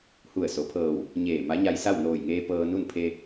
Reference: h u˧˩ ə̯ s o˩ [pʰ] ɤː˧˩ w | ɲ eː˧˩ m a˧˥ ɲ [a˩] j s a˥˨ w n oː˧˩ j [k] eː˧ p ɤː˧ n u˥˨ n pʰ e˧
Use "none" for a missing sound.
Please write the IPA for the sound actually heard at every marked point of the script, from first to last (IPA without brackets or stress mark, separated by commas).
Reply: pʰ, a˧, ŋ